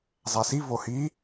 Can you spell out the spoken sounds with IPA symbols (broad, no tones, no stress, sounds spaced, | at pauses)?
zˤ æ s i v o h i